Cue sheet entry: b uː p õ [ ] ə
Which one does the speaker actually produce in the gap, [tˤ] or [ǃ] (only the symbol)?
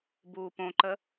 ǃ